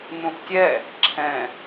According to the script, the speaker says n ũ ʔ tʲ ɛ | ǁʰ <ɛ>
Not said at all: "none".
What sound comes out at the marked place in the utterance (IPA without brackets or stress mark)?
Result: ɛ̃